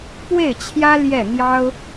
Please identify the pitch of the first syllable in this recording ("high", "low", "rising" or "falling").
falling